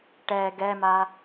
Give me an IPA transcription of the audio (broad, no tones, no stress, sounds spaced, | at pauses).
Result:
ʈ ɛ ɡ ɛ m a